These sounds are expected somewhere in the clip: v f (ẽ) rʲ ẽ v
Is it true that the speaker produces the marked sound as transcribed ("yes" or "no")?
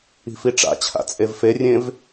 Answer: no